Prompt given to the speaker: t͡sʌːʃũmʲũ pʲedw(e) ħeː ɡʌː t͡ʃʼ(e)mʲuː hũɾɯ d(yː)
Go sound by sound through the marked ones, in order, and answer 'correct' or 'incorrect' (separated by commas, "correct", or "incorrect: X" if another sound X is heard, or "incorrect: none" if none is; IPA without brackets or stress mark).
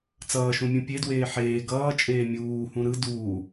incorrect: eː, incorrect: eː, incorrect: uː